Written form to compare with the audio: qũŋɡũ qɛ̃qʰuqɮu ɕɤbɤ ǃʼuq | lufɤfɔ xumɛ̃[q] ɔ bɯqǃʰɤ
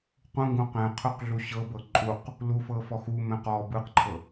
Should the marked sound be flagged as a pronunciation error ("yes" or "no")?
no